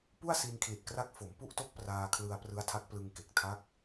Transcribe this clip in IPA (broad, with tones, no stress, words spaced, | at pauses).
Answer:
pu˥˩a̯si˧nkʰli˨˩t̚kra˦˥k̚ fo˩˦m pu˥˩ʔto˥˩k̚ praː˧kʰlɯ˧a̯ prɯ˦˥a̯tʰa˦˥k̚ plɯ˧ŋke˨˩k̚ tʰa˦˥k̚